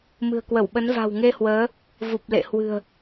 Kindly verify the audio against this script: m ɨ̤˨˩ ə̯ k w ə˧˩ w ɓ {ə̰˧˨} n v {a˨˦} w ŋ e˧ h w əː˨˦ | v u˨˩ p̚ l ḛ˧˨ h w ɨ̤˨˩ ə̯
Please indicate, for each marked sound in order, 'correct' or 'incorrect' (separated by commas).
incorrect, incorrect